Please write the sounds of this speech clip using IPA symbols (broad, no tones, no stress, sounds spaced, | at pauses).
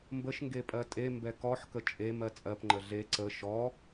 m b ə ʃ ŋ ɡ e pʼ ɜ tʼ e m b ɛ k ɔ ħ k ə t͡ʃʼ e m ɜ t͡sʼ ɜ p ŋ͡ǃ ə ɮ e ǀ ə ʃ ɔ